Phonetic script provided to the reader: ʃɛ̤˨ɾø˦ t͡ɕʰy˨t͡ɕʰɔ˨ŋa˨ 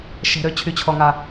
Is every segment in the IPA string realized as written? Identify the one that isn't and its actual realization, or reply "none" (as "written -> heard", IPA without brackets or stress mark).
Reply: none